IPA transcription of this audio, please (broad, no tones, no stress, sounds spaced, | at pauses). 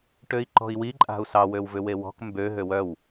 ʈ ø i̯ ǃ ɔ̤ i̯ w i ǃʼ a̤ u̯ s ɑ w ø w v ʏ w e w ɔ̤ k m b ø ɦ ø w œ w